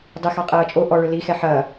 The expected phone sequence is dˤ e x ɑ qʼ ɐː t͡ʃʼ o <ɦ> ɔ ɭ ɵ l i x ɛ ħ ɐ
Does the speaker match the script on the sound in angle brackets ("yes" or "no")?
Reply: no